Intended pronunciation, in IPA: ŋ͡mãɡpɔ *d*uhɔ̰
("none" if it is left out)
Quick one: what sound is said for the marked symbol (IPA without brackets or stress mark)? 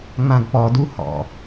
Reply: d